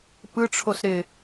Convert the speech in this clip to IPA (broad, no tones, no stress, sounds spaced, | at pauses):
p ɯ ʈ͡ʂʰ o s ɾ ɪ